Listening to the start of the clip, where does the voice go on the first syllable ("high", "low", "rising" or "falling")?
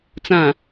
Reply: low